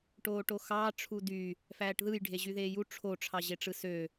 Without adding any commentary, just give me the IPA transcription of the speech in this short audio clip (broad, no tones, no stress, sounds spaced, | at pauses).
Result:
ʈ oː ʈ o x ɑː ʈ͡ʂʰ u d y | f æː ʈ ð ɯ j ɖʱ e ʑ y ð eː j u ʈ͡ʂʰ o ʈ͡ʂʰ ɑ ʑ e ʈ͡ʂ ɯ s ø